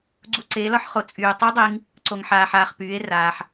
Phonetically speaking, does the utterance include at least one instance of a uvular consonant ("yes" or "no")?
yes